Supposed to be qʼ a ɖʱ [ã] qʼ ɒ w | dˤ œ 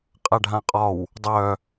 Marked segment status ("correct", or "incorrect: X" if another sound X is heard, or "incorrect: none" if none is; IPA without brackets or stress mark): correct